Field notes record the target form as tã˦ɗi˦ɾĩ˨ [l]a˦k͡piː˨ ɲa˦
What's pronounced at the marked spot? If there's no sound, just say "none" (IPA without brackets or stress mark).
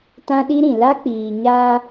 l